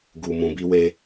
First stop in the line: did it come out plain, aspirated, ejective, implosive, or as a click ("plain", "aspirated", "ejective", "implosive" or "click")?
plain